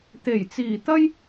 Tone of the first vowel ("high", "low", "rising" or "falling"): low